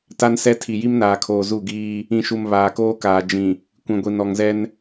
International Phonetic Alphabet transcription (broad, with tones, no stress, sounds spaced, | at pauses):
t a˦ n s ɛ˦ tʰ i˨ j i˦ m n aː˨ kʰ oː˨ z u˦˨ ɡ iː˦ | ĩ˨ ʃ u˨ m β aː˨ k oː˦ k aː˨ d͡ʒ ĩ˨ | kʷ ĩ˨ ɡʷ i˨ n ɔ˨ ŋ z ɛ˦ n